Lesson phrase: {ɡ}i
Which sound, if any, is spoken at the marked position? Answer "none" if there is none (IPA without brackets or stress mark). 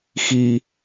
x